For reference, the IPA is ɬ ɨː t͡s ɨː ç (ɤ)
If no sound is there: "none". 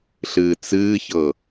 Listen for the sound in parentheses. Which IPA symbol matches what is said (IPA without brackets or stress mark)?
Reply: ɤ